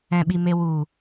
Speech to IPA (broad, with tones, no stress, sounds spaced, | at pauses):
ɛ̃˨ ɓ i˨ m e˨ w u˨